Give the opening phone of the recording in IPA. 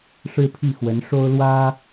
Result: ʂ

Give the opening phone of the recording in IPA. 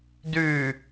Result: d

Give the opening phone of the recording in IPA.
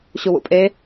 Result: ɕ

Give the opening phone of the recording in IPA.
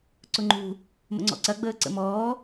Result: ǀ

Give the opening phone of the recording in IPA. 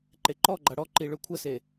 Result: ǃ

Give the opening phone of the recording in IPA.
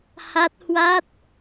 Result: h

